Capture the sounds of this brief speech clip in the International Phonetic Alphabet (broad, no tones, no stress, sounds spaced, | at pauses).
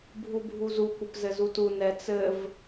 bʱ u bʱ u z u kʷ ə p z ɘ z u t u n ɛ t͡s ɘ v